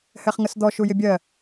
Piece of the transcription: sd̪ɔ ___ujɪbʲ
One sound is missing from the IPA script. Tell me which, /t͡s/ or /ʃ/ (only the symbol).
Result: ʃ